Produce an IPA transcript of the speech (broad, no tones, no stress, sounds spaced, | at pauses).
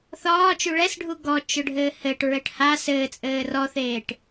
θ ɒː t͡ʃ u ɭ ɛ s ɖʱ u ɡ ɔ t͡ʃ ʊ ɖʱ ɘː h ɘ ʈ ɹ ɘ ʈ h a s ɘː t͡sʼ ɘː r ɔ θ eː ʈ